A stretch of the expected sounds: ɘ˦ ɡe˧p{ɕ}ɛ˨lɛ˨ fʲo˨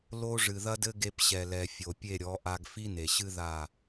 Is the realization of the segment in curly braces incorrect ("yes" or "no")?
no